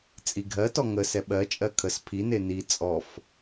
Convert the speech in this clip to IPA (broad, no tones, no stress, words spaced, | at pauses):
t͡sʼiɡʱɜtɔ ŋə sɛɓɜt͡ʃʼɜ kʰəs pʰi neni t͡sʼɔf